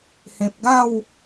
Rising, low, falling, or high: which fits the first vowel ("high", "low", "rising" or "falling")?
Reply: low